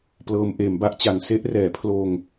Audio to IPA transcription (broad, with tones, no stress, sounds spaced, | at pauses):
p l ɤː˧ m ʔ eː˩˦ m b a˥˩ ʔ t͡ɕ a˨˩ n s e˥˩ ʔ r ɛː˩˦ pʰ l oː˧ ŋ